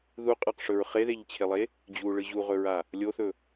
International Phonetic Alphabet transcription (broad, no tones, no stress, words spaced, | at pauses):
ðuqʼaqʂɵɹ χeðeʎt͡ɕʰelˠe | d͡ʑuɭɨ ʑuʁɵɹa | lʲoθɵ